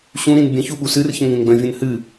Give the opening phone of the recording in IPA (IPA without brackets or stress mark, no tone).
ɕ